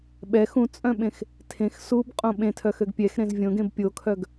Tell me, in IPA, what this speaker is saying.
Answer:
ɓɛx ũt͡sʼœ̃ɓẽx | tʰẽx subqʼõ ɓẽtʰœxøɡ pʲɛxɾẽz vʲõɡẽb pʲokʰœɡ

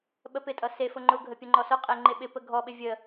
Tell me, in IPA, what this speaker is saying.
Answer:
ɓəpɪtʼʌ sefʊ ŋ͡ǃʊɡʱəpʲəŋ͡ǃɔ sʊqʼeŋ͡ǃe ɓɪpə ɡʱɔɓɪ vʲə

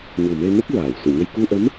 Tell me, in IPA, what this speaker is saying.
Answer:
ɲu˨˩me˧nə˦˥k̚ ɹaː˨˩˨wsu˨˩˨ɲə˧j ku˧ ʔə˧˥m

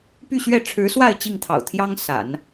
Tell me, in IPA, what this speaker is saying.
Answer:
py˥˧ɕɥɛ˥˩ ʈ͡ʂʰɻ̩˧˥swa˥˧ɪ̯ t͡ɕi˥˩ŋt̪ʰɑ̰˨˩ʊ̯t̪ʰjɑ˥ŋ sa̰˨˩˦n

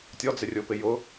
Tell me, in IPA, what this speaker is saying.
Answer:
tʲɔd͡zɪrʲʊːpɪ jʊ

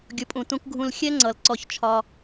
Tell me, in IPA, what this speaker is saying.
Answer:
ɡʲʊ˨pʼũ˨ tũ˧kɡʱũ˧l xʲɛ˦ŋ͡ǀʌ˨l ǀɔ˧çt͡ʃʰɒ˧

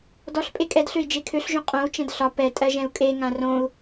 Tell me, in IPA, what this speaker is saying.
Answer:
dɔɬ pʼekʼɛdɬøi̯ d͡ʒekʰøɬʒõ qʼõu̯t͡ʃɛ̃d ɬɒ pɛ tʼɜʒɛ̃u̯kʼeŋã rõu̯

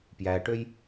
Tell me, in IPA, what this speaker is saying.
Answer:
pjæʈøj

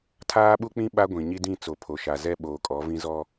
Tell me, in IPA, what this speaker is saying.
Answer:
tʰaː˦ɓu˦k͡pĩ˦ ɓa˦ɡʷĩ˨ɲi˦dĩ˦˨ t͡so˨pʰo˨ʃa˨ zɛ˦ɓoː˨kʼɔ˨˦vĩ˦ zɔ˦

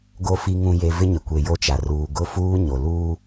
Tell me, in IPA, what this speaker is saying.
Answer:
ɡo˨ fi˨ŋũ˨je˨ vɪ˦ɲɪ˨kʷe˨ jo˦t͡ʃa˨ ruː˨ ɡʊ˦fuː˦ ɲo˨ luː˦

